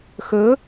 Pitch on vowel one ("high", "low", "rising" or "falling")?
rising